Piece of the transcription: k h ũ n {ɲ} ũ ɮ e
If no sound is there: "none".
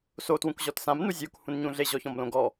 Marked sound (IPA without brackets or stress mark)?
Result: ɲ